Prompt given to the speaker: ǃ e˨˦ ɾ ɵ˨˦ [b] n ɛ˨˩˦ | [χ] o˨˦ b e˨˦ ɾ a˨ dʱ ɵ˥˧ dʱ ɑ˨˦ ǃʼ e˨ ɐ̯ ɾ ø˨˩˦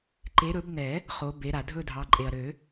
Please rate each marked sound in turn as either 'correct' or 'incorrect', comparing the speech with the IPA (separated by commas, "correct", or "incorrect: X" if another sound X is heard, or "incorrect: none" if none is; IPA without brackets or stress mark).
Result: correct, correct